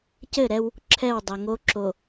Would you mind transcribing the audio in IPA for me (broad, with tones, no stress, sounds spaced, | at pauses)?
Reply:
c ɘ˦˨ ɾ ɛ˦ w | ǁʰ ɛ˦˨ w dˤ ɐ˨ ŋ o˦ ǁ o˨